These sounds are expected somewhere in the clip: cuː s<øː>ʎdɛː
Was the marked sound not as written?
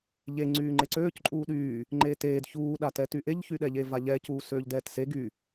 no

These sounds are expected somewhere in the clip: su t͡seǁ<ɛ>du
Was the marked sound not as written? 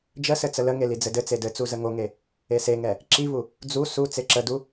yes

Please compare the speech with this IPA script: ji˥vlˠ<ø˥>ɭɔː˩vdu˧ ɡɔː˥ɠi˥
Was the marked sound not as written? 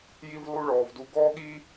yes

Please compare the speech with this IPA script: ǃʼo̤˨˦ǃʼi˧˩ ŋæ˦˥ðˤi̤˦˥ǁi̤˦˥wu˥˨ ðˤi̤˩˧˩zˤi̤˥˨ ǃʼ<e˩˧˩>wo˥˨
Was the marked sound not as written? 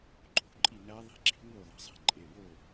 no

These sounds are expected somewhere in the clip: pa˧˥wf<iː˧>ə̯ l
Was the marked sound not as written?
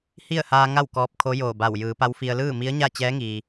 yes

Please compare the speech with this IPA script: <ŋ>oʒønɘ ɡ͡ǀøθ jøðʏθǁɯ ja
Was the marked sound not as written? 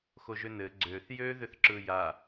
yes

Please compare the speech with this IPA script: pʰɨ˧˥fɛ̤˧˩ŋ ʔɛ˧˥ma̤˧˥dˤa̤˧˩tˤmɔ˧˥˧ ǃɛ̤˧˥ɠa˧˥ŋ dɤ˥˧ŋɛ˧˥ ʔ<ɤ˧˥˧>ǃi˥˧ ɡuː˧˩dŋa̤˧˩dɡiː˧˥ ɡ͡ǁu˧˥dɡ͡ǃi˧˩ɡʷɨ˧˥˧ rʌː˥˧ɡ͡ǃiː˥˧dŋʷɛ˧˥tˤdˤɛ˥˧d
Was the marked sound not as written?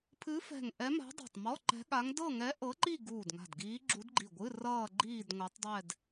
yes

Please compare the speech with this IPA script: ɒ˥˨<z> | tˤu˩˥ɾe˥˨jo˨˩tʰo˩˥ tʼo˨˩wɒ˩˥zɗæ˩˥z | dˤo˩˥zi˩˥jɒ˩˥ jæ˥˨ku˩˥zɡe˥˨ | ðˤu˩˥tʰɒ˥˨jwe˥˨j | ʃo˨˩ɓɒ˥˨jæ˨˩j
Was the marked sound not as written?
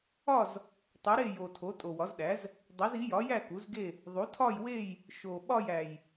no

